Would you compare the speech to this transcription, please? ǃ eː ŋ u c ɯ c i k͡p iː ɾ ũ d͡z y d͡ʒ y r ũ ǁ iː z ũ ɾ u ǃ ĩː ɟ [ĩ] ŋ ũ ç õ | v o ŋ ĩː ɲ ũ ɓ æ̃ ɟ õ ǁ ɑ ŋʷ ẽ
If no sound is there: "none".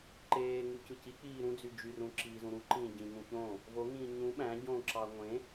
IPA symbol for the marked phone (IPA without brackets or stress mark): ĩ